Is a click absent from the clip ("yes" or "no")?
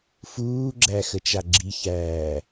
no